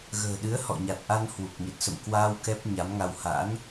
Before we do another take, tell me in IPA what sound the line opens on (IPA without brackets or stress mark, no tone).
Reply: ɣ